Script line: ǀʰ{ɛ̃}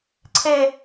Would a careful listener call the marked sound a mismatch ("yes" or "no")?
yes